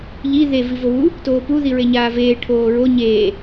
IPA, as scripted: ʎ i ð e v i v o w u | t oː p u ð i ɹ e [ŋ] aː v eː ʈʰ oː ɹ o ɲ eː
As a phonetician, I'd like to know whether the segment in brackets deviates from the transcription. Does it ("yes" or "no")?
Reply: yes